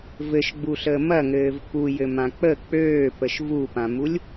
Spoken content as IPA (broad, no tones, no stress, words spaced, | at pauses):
vɘʃɡ͡buɬəː mɐŋɘːv pujɘmã k͡pə k͡pøːpəʃ vupãmulʲ